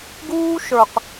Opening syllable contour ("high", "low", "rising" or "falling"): high